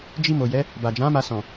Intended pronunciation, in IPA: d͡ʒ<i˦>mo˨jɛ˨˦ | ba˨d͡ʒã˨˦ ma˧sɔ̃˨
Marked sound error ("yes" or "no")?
yes